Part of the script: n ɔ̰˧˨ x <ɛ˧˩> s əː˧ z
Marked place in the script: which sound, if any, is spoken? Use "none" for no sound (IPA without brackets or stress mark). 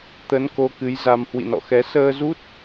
ɛ˨˦